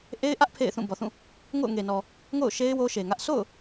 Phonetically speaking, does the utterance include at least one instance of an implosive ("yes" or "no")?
no